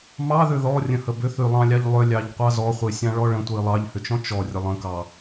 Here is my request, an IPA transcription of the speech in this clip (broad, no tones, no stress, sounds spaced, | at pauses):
m ɑ ð ʏ ð ɔ rʲ ə̃ h ə b ʏ θ y lˠ ɑ̃ lʲ ɑ ʎ lˠ ʏ lʲ ɑ ʎ qʷ ɑ z ɔ χʷ e sʲ ɑ̃ ɭ ɔ ɭ ə̃ tʷ i lˠ ɑ ʎ h ʏ t͡ʃ ɔ̃ t͡ʃ ɔ rʲ ə lˠ ə̃ k ɑ